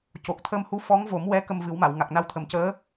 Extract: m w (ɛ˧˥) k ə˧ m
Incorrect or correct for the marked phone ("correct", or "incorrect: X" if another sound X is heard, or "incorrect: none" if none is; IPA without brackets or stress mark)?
correct